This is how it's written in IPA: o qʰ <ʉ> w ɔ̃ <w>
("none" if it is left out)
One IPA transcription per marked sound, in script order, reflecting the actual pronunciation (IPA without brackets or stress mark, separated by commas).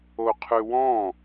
ʉ, none